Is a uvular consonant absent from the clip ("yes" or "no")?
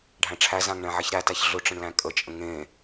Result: yes